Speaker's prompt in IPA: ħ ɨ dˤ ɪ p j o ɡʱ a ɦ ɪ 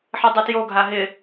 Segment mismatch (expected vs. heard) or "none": p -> t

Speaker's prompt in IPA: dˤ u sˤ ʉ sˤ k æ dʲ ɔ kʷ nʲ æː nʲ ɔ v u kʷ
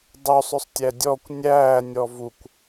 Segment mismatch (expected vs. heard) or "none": k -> tʲ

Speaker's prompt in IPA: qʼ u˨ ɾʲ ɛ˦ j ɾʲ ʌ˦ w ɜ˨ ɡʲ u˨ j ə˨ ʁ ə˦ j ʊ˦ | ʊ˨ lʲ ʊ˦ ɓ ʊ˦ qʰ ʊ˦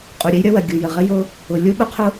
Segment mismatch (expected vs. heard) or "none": none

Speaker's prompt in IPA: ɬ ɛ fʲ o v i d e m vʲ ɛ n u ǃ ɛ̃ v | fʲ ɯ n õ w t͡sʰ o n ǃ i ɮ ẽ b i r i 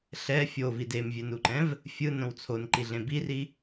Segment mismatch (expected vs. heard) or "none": none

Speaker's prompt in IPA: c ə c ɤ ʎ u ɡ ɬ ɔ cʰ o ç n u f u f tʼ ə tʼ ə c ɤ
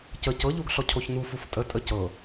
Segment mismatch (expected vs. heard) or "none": none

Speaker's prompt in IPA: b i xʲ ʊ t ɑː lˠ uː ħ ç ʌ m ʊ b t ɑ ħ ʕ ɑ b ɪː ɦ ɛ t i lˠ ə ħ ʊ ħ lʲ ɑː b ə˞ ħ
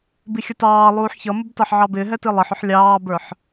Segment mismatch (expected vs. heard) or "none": none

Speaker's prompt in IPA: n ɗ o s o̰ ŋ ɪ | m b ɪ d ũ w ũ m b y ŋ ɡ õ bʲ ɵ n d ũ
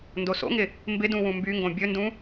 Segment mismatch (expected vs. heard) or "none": ɗ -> d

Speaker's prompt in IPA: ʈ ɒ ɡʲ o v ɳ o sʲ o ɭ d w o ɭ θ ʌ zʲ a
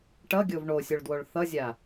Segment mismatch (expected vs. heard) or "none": ɒ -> ʌ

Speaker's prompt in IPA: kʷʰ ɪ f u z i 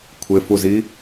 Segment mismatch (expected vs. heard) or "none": none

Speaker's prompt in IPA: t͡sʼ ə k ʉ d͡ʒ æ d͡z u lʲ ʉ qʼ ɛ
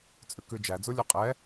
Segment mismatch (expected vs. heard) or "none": ə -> ʉ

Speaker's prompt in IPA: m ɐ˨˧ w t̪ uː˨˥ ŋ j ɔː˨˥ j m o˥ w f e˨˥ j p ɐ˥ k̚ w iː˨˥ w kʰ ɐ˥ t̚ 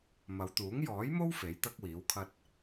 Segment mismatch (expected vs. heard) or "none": p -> t̪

